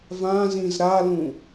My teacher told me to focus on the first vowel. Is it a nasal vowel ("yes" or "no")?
yes